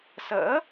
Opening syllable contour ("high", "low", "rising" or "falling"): rising